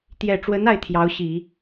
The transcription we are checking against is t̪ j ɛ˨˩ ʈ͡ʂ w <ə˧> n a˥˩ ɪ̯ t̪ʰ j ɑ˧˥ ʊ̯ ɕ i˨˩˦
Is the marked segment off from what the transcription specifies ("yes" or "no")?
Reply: yes